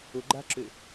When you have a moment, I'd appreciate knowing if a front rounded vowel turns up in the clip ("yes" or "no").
yes